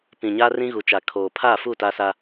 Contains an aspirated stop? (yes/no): yes